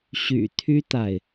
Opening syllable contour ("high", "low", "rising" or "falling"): low